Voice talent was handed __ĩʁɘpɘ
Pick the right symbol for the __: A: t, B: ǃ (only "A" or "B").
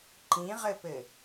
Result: B